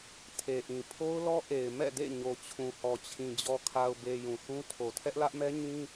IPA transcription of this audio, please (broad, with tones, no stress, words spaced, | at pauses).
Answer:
tʰe˨ʔĩ˨ pʰo˦ʊ̯lɔ˦ ʔe˨ɪ̯ mɛ̰˦˨dḛ˦˨ ɲo˨t͡ɕʰũ˨hɔ˨t͡ɕʰĩ˨ d͡ʑɔ˨kʰa˨ʊ̯be˨ jũ˨θũ˦ tʰo˨tʰɛ˦ʔlä˦ʔmɛ˦ ɲĩ˦